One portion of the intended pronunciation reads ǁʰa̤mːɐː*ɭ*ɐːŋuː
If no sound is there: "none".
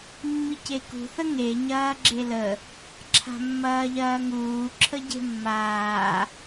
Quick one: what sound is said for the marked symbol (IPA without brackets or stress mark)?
ʎ